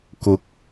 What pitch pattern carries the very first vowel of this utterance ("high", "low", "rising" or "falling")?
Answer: rising